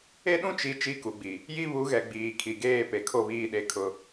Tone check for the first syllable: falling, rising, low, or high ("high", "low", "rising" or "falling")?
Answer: high